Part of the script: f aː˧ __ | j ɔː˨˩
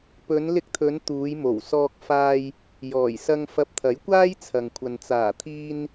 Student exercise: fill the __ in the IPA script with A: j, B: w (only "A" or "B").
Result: A